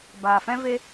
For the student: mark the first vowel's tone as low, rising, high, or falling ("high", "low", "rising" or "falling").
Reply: low